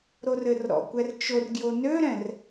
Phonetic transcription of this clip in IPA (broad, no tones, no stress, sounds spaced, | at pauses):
ɾ o r ɘ r ɾ ɔ̰ kʷ ɛ r t͡ʃ o r ɡ j o n ø ɾ ɛ̃ r